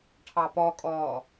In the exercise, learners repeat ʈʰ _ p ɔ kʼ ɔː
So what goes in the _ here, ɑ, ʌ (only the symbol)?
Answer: ɑ